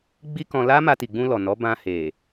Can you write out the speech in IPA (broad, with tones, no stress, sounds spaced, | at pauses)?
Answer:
ɡ͡b i˦ k ɔ̃˧ l a˦ m a˧ t i˨ ɡ͡b ũ˧ l ɔ˨ n ɔ˨˦ b ã˧ h e˨